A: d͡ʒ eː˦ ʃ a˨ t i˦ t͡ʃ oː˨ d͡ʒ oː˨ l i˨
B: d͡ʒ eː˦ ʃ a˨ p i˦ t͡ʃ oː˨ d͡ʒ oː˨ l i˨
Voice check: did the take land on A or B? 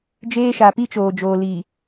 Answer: B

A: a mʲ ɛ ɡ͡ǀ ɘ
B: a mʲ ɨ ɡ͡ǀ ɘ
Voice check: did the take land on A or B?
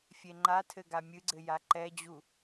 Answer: B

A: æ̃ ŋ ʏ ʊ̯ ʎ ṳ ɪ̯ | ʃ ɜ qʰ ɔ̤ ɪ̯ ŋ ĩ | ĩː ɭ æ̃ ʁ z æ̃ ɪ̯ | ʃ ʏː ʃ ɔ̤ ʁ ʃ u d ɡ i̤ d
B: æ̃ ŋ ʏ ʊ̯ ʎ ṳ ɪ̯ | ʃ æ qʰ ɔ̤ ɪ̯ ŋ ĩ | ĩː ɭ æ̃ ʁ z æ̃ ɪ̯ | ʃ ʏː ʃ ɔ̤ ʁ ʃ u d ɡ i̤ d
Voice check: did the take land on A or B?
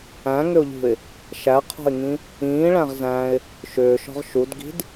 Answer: B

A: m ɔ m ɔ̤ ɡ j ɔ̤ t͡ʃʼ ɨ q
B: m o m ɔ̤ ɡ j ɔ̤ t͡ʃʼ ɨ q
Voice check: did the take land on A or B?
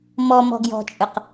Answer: A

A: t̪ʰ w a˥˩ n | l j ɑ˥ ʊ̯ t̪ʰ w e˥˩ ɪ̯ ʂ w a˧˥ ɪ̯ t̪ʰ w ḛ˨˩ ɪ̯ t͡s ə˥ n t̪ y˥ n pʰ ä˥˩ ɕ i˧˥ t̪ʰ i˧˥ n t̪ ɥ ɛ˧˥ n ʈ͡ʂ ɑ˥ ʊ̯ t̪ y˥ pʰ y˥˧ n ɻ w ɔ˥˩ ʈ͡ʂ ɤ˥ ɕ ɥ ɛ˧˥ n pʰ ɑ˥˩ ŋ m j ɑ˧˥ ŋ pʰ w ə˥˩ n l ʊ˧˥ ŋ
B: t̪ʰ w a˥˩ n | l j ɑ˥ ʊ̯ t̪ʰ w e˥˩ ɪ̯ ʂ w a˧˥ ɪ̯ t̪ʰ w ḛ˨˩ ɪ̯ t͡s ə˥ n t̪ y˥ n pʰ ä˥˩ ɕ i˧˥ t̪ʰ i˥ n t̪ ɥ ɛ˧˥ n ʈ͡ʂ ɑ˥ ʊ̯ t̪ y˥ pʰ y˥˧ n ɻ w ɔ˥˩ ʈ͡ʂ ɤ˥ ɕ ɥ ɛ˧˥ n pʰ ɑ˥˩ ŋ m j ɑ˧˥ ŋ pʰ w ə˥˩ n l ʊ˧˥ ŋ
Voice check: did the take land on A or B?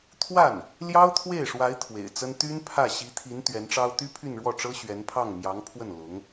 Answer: A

